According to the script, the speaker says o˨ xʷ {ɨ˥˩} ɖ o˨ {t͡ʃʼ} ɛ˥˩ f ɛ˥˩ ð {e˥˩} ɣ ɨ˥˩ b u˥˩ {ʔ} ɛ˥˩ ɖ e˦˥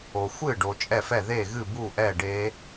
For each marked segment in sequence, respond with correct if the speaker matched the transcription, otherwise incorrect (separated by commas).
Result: correct, correct, correct, correct